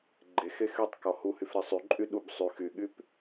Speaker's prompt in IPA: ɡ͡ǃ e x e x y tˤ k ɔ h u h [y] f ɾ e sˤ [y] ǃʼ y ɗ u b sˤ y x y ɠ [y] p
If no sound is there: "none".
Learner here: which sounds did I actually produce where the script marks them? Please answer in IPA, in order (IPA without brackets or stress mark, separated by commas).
y, y, y